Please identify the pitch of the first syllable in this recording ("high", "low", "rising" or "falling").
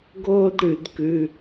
high